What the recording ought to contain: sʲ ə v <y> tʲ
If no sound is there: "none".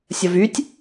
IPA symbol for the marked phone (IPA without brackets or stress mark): y